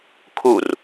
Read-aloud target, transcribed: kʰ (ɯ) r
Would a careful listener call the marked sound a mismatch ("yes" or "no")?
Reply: yes